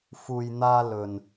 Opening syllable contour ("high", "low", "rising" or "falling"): low